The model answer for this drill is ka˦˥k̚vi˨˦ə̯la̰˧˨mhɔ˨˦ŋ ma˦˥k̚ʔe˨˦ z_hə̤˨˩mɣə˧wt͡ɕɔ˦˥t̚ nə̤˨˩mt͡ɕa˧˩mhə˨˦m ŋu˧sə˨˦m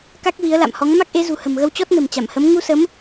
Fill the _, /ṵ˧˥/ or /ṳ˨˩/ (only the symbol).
ṳ˨˩